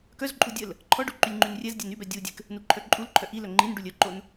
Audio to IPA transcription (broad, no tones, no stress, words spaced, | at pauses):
kœzǃʼu dʲəl | ǃʰɔɖu ǃylʲŋ͡ǃynrʲɛzdʲɛn ybɛ dʲudʲɛk | nuǃʰœǃʼulǃʰœ ʔilœ ŋ͡ǃinɖulʲ œǃon